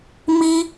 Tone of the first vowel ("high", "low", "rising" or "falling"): high